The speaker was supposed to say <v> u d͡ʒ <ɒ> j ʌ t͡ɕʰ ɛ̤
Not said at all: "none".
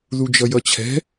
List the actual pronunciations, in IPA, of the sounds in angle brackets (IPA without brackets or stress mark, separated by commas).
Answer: ð, ʌ